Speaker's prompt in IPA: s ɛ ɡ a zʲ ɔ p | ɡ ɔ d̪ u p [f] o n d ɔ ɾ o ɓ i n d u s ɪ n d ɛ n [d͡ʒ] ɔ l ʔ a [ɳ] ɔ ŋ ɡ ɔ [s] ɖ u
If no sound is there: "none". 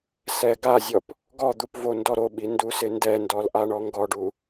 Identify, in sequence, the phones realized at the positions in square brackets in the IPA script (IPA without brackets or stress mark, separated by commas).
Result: v, d, ɳ, none